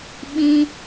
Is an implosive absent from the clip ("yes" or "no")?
no